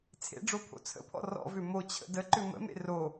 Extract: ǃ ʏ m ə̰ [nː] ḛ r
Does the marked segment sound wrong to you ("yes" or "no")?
yes